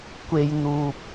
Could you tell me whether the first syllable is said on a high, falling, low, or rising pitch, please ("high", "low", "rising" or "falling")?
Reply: low